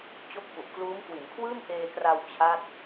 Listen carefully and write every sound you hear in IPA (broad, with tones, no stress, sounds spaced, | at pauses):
t͡ɕ o˦˥ k̚ f u˨˩ ʔ k l uː˦˥ m k w i˩˦ n kʰ w ɯː˥˩ m ʔ eː˧ k r a˧ w t͡ɕʰ a˥˩ t̚